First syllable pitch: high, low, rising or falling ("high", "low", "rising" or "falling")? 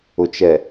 low